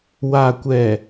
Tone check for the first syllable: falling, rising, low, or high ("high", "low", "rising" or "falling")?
low